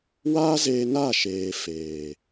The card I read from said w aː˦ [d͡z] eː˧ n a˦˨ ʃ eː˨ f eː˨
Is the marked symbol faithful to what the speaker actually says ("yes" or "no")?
no